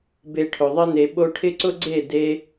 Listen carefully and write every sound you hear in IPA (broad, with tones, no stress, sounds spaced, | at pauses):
b e˧ ʈʰ ʊ˨ ðˤ ɪ˧ n e˨ ɓ o˧ ʈʰ ɪ˦ ǀ ʊ˦ ɡ͡ǀ e˦˨ d e˦